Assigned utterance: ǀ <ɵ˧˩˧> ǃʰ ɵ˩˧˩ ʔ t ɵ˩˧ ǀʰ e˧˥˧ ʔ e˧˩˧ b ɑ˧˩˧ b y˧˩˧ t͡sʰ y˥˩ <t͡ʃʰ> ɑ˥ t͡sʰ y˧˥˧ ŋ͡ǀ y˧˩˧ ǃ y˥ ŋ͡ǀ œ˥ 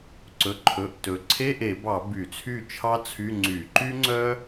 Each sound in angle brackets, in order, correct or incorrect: incorrect: ɵ˩˧˩, correct

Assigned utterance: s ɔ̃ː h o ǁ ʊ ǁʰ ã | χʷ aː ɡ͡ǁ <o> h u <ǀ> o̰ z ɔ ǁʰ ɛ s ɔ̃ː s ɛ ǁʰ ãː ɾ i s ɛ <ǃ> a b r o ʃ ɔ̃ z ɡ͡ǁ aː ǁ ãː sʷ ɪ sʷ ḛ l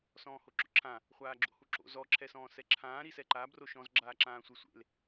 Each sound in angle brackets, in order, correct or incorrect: incorrect: o̰, incorrect: ǁ, correct

